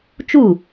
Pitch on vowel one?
falling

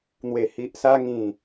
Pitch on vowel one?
low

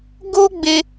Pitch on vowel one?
high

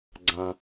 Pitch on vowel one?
low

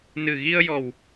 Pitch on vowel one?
low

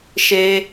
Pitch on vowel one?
high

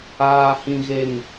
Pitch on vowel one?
low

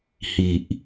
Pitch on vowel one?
low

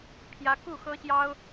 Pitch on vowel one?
high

